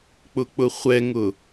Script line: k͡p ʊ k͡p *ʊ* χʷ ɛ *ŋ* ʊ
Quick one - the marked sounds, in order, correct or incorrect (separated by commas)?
correct, correct